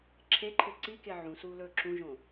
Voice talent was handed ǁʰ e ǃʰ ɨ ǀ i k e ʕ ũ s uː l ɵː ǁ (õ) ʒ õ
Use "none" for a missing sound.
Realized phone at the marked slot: ũ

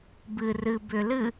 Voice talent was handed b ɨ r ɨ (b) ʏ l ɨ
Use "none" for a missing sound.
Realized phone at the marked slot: b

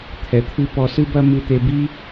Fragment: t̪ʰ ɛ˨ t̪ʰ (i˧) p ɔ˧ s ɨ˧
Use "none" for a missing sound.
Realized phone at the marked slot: ɨ˧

